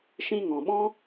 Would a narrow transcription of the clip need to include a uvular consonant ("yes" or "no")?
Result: no